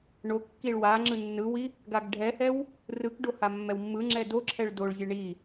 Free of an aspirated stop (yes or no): no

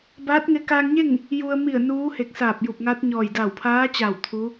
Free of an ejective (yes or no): yes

